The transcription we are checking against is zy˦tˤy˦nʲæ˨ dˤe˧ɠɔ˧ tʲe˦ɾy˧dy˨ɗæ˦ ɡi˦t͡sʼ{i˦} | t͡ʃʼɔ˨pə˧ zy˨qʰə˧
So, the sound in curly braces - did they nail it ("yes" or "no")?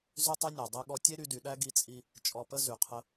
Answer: yes